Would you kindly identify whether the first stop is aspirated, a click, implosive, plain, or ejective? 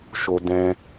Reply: plain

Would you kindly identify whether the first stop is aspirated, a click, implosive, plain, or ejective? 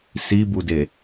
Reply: plain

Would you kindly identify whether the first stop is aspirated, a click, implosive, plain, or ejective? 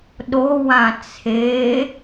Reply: implosive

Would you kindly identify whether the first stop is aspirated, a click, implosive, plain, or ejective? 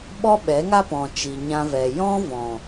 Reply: implosive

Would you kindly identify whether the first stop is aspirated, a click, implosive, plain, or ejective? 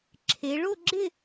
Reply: click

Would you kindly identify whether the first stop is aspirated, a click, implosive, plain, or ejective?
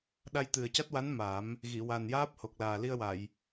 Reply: implosive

